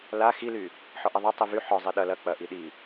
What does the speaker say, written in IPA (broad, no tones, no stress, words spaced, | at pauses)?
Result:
la xily | ħɔʔiðˤɐ tˤivy ħɔzˤi ɗɐ lɐ k͡pɐ ʔiɗi